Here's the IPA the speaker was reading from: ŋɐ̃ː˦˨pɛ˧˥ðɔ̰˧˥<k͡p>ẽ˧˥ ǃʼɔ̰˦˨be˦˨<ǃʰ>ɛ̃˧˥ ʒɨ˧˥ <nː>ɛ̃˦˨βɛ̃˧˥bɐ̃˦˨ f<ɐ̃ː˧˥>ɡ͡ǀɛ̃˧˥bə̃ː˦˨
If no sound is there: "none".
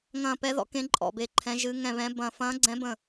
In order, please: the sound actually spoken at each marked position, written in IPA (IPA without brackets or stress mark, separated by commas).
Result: k, ǃʰ, ŋ, ɐ̃ː˧˥